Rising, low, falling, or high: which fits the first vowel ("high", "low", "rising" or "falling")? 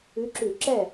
rising